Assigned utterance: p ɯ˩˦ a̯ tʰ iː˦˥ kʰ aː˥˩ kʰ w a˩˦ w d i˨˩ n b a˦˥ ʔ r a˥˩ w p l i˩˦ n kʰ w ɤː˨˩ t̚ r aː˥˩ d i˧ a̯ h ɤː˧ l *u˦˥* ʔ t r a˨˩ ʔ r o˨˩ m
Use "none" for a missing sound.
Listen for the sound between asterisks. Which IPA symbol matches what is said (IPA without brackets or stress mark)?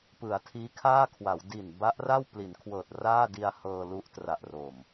u˦˥